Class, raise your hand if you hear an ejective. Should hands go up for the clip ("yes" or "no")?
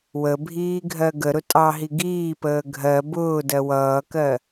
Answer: yes